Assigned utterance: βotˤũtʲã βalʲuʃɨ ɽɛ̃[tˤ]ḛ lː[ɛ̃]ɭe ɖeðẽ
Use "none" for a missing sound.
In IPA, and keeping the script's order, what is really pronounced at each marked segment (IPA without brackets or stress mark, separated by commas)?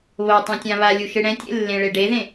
tʲ, ẽ